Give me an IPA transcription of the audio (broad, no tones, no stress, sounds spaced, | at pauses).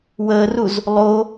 w əː r u z | lˠ o